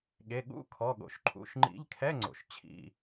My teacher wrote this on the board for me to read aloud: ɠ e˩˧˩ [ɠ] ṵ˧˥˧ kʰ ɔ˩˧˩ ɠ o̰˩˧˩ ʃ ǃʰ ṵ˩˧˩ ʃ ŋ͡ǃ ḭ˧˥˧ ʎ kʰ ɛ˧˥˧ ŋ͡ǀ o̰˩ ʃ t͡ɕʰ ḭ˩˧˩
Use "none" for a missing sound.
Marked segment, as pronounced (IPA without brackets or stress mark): ɠ